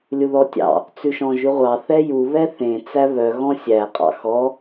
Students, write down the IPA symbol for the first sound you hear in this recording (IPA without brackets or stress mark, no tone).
lʲ